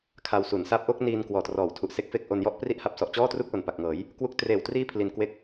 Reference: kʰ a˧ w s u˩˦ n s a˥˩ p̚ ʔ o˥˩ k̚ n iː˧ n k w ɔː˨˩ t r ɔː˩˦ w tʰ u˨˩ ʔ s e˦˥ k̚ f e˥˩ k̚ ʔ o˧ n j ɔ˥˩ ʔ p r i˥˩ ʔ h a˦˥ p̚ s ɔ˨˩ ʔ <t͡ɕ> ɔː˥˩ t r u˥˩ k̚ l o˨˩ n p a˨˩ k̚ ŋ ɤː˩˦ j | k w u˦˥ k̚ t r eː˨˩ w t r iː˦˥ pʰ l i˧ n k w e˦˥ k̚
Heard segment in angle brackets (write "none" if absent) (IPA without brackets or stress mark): t͡ɕ